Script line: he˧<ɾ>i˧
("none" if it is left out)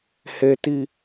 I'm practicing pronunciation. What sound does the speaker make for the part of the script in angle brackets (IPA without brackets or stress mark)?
t